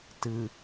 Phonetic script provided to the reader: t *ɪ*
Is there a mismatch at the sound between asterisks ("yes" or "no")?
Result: yes